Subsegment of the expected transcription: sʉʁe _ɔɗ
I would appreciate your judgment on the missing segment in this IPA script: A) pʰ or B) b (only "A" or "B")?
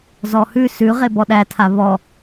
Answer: B